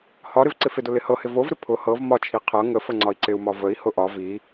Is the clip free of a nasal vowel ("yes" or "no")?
yes